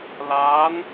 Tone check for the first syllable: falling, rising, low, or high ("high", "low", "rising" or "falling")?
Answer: rising